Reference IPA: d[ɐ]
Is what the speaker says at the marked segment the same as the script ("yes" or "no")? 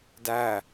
no